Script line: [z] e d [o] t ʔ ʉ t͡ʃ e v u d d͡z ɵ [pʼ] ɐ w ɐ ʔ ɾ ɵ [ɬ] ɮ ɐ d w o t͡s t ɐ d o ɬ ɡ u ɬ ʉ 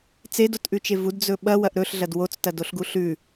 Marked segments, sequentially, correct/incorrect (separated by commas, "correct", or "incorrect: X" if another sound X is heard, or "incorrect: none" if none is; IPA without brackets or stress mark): incorrect: t͡s, correct, incorrect: ɓ, correct